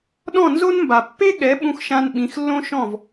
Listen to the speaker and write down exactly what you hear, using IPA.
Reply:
ɗɔ̃˥˩nzo˥nmba˩ pːe˥ɠɛ˩˥ ɓũ˧xʃã˧n ɓĩ˩˥xlːõ˥ʃɔ̃˥˩v

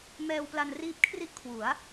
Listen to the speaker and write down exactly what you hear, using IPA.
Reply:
mɛː˧wpla˧nriː˦˥p̚ kʰri˥˩ʔkʰwu˩˦a̯

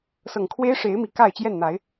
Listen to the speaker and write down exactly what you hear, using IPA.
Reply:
sɤ˨˩ŋkʰwe˦ɪ̯ ʂe˨˦ɪ̯ mi˨˩ka˥˨ɪ̯t͡ɕjɛ˥˨n n̪a˨˦ɪ̯

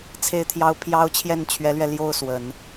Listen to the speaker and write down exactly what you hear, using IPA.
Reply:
t͡sʰe˥˩ɪ̯t̪ʰjɑ˥ʊ̯pʰjɑ˥ʊ̯ t͡ɕʰjɛ˥˩nt͡ɕʰɥɛ˧˥lɥɛ˧ ljo˥˩ʊ̯ swə˨˩˦n

